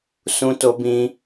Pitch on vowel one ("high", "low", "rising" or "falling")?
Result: high